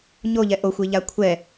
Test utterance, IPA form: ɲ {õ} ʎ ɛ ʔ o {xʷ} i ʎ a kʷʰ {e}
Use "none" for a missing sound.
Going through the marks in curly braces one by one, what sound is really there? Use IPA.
o, xʷ, ɛ

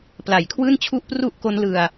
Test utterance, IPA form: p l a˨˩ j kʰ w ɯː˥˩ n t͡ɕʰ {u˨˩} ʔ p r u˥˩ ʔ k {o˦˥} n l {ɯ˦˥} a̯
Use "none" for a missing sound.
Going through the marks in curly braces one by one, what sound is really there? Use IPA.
u˥˩, o˦˥, ɯ˧

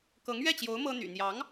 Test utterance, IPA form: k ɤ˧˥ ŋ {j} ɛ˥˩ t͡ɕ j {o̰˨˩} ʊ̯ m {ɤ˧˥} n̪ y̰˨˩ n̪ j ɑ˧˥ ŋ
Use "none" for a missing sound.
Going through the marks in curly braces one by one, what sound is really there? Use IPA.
ɥ, o˧˥, ɤ˥

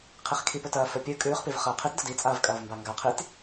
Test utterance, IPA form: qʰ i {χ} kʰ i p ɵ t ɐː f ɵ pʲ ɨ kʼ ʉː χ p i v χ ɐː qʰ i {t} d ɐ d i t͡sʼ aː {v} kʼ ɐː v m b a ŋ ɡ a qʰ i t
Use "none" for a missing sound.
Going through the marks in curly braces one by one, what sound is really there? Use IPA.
χ, t, v

